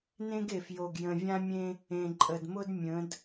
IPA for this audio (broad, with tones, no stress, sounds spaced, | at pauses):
n ẽ˦ ɡ e˨ f j o˨ ɡ j ə̃˨ vʲ ã˦ mʲ ẽ˦ | ẽ˨ ǃʼ ə˨ d m ʊ˦ d mʲ ə̃˨˦ d